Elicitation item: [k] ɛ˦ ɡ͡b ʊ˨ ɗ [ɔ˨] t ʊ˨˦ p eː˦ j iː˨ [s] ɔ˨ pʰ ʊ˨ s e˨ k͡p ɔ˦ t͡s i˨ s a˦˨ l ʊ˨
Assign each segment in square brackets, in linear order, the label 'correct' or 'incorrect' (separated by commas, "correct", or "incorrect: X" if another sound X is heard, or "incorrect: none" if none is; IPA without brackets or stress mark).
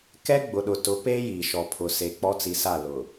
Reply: correct, incorrect: ʊ˨, incorrect: ʃ